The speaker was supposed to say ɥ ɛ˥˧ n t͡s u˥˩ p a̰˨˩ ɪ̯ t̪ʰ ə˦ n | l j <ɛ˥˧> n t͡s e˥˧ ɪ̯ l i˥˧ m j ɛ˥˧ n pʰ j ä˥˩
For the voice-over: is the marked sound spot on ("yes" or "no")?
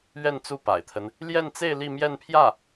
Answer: yes